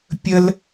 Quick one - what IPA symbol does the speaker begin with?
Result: pʲ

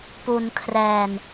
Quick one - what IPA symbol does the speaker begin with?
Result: p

